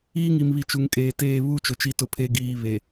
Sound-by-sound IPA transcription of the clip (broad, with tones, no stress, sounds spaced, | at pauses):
iː˦ ŋ i˨ m β i˨ t͡ʃ u˨ ŋ kʼ eː˨ t eː˦˨ β u˦˨ t͡ʃ ʊ˨ t͡ʃ i˨ t ʊ˨ pʰ e˨ ɡ iː˨ β e˨